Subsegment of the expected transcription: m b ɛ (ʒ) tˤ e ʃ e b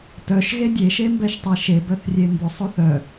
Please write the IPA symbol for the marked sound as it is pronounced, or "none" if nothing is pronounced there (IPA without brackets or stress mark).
ʃ